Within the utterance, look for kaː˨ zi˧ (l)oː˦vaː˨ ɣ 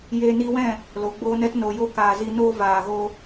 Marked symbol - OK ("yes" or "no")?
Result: no